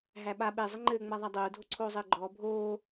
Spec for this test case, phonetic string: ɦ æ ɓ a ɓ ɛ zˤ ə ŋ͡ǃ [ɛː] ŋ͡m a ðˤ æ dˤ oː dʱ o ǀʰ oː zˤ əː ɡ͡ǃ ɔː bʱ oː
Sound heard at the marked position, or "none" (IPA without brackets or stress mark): ɘː